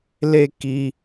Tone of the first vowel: high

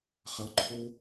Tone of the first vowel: rising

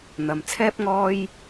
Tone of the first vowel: low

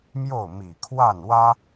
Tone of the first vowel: falling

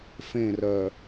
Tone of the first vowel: falling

